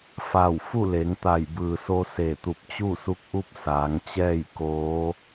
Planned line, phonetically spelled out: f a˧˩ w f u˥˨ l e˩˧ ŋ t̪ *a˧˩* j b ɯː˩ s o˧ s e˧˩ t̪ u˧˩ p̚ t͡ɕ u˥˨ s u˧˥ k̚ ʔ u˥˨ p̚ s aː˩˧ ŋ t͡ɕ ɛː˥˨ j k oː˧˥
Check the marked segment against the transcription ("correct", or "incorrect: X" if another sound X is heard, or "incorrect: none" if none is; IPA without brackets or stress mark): correct